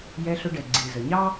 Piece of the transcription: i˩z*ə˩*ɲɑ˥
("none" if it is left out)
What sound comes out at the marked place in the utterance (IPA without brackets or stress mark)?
ə˩